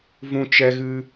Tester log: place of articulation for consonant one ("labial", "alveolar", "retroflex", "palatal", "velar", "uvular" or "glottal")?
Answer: labial